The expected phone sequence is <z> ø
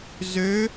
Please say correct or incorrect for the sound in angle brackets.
correct